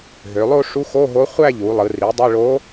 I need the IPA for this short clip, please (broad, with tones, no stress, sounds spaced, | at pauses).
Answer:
ɦ ø˩˧ lˠ o˥˧ ʂ u˧˥ x o˧˥˧ ɦ o˧˥ χʷ æ˥˧ ʎ u˩˧ lˠ ɯ˩˧ r i˩˥ dˤ ɯ˧˥˧ ɭ o˧˥